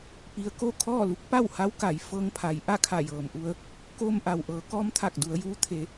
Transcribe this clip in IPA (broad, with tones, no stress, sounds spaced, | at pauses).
p i˧ ə̯ k o˥˨ kʰ ɔː˥˨ l u˧˥ k̚ p a˥˨ w h a˧˥ w k a˩˧ j f ɤː˧ ŋ pʰ a˩˧ j ʔ a˥˨ kʰ a˧˩ j ɤː˩ m ʔ u˧ ə̯ | k oː˧ m ʔ a˩ w ʔ ɤː˩˧ k ɔː˧˥ m t̪ʰ a˧˩ k̚ d u˩˧ ə̯ j uː˧ t̪ʰ e˩˧